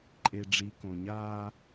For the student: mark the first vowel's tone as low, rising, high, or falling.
low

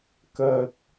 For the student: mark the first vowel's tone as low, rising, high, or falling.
low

